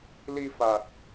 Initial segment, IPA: l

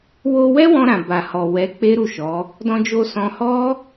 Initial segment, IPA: w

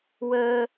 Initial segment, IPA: w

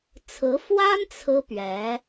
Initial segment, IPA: t͡sʰ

